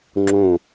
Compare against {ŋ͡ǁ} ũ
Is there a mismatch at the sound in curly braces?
no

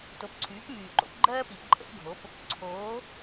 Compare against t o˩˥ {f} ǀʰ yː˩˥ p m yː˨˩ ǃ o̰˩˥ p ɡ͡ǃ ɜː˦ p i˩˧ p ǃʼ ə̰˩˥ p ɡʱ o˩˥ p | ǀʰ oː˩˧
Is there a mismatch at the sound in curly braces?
yes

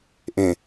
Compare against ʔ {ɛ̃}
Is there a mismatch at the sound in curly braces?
yes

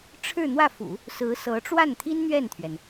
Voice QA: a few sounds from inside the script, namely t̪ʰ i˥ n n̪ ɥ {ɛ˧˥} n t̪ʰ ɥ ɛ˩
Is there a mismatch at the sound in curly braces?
yes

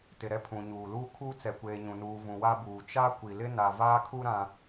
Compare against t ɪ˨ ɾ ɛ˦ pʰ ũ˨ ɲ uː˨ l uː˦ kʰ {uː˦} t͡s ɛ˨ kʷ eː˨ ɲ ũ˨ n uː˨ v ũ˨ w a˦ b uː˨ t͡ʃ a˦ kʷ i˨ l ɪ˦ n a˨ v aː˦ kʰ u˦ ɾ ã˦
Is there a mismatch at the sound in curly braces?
no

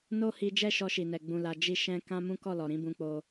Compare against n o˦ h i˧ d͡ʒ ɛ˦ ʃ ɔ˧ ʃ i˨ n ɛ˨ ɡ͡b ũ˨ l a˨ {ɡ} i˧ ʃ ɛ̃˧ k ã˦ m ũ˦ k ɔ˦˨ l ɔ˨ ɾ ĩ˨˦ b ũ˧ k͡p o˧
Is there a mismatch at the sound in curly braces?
yes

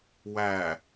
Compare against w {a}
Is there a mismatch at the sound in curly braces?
yes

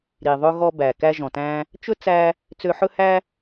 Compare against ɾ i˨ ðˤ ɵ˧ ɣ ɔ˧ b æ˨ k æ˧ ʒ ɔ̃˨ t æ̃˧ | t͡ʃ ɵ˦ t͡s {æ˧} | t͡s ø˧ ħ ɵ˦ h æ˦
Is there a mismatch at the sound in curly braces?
no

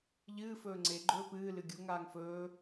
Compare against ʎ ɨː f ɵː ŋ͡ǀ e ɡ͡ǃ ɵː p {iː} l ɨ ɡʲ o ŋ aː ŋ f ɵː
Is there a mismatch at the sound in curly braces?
yes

